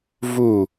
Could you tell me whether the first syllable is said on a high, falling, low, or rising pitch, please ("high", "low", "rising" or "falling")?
falling